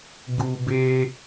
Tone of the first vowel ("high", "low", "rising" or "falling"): low